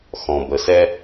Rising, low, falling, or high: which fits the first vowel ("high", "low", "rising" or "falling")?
low